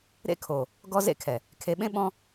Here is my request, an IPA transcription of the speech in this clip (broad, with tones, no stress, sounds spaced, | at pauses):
ɾ ḛ˦ kʰ o˨ | ɡ ɔ˦ z ḛ˦ kʰ ɛ˨ | kʰ e˨ ɓ ẽ˦ ɓ ɔ̃˦